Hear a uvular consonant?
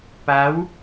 no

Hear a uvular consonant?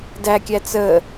no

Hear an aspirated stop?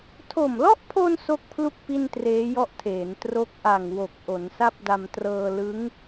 yes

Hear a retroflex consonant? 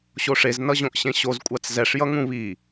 yes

